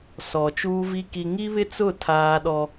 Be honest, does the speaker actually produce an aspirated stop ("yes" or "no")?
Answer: yes